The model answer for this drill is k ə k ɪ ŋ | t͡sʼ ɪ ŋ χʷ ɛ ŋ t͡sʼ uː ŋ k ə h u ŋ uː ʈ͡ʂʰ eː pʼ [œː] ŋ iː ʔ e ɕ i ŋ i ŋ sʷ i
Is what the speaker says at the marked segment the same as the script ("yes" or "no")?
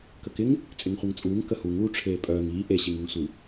yes